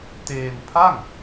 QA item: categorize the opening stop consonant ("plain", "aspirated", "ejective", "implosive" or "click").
plain